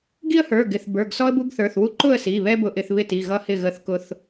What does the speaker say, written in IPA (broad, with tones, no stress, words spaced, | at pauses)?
ɡi˦ə̯hə˞˩˧˩ɡɪ˩˧˩θ bə˞˩˧˩ɡsɔ˦ə̯ bu˦ɡθə˞˩˧˩θwu˦ ǃʊ˥˨ə̯si˩˧˩βɛ˦ bʊ˦ʔɪ˦θ βɪ˥˨ti˩˧˩ɣʌ˦ hɪ˥˨ɣə˥˨θ kʊ˦θ